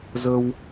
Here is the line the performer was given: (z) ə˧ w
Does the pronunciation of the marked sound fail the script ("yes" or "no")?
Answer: no